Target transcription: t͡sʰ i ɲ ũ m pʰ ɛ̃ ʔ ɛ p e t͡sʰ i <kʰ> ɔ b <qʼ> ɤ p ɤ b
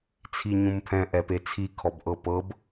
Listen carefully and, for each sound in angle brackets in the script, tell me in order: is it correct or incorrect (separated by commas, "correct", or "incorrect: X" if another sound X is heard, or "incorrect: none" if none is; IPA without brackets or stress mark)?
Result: correct, incorrect: ʔ